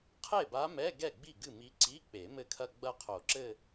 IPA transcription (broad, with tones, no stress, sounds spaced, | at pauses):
qʰ e˥˩ b a˧˥ m ɛ˧˥˧ ɡ ɛ˥˩ ɡ͡b i˥˩ ɡ ɨ˥˩ m i˧˥ ǀ i˧˥˧ k͡p e˨˩˦ m ɘ˥˩ kʰ ɐ˥˧ ɡ͡b ɐ˥˧ qʰ o˨˩˦ ǁ ɘ˥˧